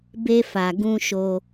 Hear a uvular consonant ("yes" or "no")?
no